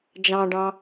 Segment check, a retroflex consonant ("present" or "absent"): present